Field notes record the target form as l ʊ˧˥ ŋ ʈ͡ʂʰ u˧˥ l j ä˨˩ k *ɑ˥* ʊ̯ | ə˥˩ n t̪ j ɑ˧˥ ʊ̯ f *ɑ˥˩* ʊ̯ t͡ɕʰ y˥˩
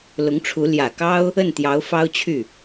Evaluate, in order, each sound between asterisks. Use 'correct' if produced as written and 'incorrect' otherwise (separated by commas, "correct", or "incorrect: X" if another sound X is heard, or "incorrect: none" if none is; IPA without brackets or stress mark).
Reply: correct, incorrect: ɑ˥